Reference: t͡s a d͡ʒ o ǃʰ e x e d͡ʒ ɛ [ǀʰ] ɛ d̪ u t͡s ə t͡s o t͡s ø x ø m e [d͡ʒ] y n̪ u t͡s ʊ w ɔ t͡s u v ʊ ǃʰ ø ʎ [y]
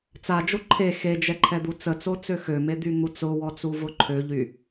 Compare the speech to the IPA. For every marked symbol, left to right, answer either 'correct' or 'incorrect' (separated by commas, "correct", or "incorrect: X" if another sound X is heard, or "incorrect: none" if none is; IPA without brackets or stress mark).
incorrect: ǃʰ, incorrect: d̪, correct